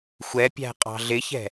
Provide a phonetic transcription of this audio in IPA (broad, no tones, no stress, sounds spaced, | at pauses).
xʷ ɛ pʲ æ̤ qʼ ɑ̤ ɮ ɪ ç ɛ̤